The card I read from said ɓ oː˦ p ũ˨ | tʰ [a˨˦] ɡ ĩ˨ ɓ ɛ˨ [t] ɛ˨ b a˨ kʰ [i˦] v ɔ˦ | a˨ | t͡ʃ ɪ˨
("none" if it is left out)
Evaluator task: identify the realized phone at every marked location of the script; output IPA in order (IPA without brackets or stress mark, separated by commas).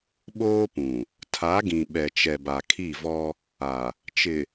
a˨˦, t͡ʃ, i˦˨